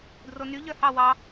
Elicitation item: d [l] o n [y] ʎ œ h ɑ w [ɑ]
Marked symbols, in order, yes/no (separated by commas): no, yes, yes